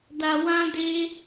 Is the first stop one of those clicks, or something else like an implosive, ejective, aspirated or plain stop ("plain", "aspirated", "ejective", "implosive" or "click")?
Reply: plain